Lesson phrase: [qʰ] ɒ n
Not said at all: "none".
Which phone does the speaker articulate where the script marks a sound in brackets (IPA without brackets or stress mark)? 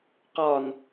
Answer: q